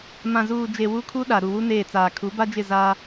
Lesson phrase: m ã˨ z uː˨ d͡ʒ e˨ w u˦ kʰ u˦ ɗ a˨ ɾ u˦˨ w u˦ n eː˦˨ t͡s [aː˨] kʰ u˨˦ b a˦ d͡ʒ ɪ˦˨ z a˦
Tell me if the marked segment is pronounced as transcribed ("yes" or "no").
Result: yes